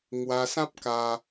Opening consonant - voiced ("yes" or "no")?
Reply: yes